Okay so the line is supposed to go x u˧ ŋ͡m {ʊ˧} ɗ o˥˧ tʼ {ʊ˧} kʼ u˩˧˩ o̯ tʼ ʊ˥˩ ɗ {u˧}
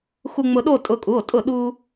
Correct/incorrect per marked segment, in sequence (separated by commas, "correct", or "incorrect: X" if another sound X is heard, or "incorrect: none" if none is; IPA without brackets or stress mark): correct, correct, correct